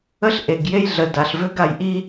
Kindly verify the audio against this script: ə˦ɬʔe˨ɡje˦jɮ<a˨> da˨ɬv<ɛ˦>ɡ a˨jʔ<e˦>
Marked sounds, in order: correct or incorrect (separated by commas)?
incorrect, incorrect, incorrect